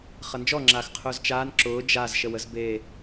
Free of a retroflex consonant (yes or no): yes